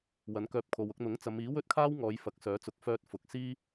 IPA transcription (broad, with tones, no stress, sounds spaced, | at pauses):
w ɐ˨˥ n k œː˧ p̚ kʰ o˨ w ʊ˧ k̚ n̪ ʊ˨˥ ŋ t͡s ɐ˨˧ m iː˨˥ w ɵ˥ t̚ kʰ aː˥ w ŋ ɔː˨˧ j f ɐ˨˥ k̚ s œː˨˥ t͡s ʊ˨˥ k̚ f œː˧ t̚ f ʊ˨˥ k̚ s iː˥